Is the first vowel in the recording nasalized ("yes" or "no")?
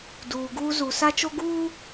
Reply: no